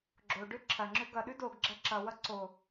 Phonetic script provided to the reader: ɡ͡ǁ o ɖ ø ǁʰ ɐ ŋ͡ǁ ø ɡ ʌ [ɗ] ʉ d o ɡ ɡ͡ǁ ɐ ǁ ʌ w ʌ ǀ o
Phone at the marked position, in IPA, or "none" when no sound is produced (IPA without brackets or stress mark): ɗ